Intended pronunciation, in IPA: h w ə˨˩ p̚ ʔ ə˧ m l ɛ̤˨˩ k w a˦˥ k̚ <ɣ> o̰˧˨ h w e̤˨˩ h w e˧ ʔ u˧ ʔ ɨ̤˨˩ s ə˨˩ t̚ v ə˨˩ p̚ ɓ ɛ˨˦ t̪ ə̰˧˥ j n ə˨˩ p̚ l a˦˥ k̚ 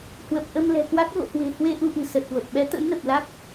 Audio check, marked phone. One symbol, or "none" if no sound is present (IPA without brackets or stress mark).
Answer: ɣ